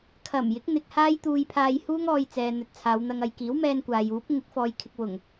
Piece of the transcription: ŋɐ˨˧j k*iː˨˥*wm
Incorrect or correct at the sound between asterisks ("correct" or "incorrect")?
correct